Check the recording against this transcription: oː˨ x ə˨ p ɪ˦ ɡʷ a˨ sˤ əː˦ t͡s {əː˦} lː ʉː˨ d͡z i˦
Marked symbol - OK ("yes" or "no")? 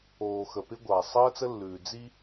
no